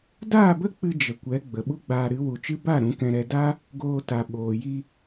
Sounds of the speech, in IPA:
d aː˦˨ b ə˦ k͡p ɨ˧ d͡ʒ ə˨ kʷ ɛ˨˦ ɡ͡b ə˨ ɓ u˦ ɡ͡b aː˧ ɾ ɨ˨˦ w u˨ t͡ʃ ɨ˦ b a˦˨ ɾ ũ˨˦ k ɛ̃˧ ɾ ɛ˧ d a˦ | ɡ oː˧ t a˨ ɓ oː˨ j i˧

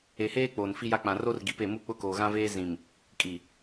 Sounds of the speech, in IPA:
e˨ h eː˦ k͡p oː˨ n f i˦ j a˦ k͡p ã˨ r o˦ r ɡ i˨ p e˦˨ m u˦˨ k͡p ʊ˦ k oː˨ ɣ ã˦ v eː˦ z ĩ˨ m | kʼ i˨

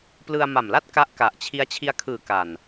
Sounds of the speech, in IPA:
p l ɯ˧ a̯ m a˨˩ m l a˦˥ t̚ k a˦˥ ʔ k a˨˩ ʔ t͡ɕʰ i˦˥ a̯ t͡ɕʰ i˧ a̯ kʰ ɯː˨˩ k a˨˩ n

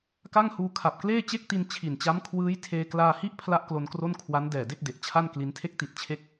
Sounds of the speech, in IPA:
k a˥˩ ŋ h uː˧ kʰ a˨˩ p̚ k l eː˥˩ t͡ɕ e˥˩ k̚ t i˧ n t͡ɕʰ i˨˩ n t͡ɕ a˦˥ m kʰ w ɯː˦˥ j tʰ eː˧ k l aː˧ h i˥˩ ʔ pʰ l a˥˩ ʔ k l o˧ n k r o˥˩ n kʰ w a˦˥ n d ɛː˨˩ d e˥˩ k̚ d e˨˩ ʔ t͡ɕʰ a˥˩ n k l i˦˥ n tʰ e˦˥ k̚ t i˨˩ t̚ t͡ɕʰ e˦˥ k̚

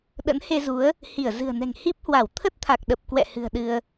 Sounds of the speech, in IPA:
ɗ ə̰˧˥ n h e˧ z u˨˦ ə̯ | h i˧˩ ə̯ z ɨ̤˨˩ ə̯ n ɛ̤˨˩ ŋ h i˦˥ p̚ h w a˧˩ w t̪ʰ ə˦˥ t̚ t̪ʰ a˨˩ k̚ ɗ ə˨˩ p̚ k w ɛ̰˧˨ h ɨ̤˨˩ ə̯ ɗ ɨ˧ ə̯

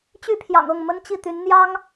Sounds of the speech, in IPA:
t͡ɕ y˥˩ pʰ j ɑ̰˨˩ ŋ ɤ˥˩ ŋ m ə˥ n t͡ɕ i˥˩ t̪ y˧˥ n n̪ j ɑ˥ ŋ

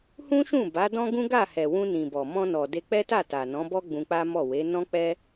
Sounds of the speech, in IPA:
h ũ˦ ʃ ũ˦˨ b a˨˦ d ɔ̃˦ ɡ ũ˦ ɡ a˦˨ h ɛ˨ w ũ˧ n ĩ˨ b ɔ˨ m ɔ̃˧ n ɔ˨ d e˧ k͡p ɛ˦ t a˦˨ t a˨ n ɔ̃˨˦ b ɔ˦ ɡ͡b ũ˧ k͡p a˦ m ɔ˦˨ w e˨˦ n ɔ̃˦ k͡p ɛ˦

